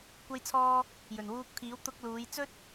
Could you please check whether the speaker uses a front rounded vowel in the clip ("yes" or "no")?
no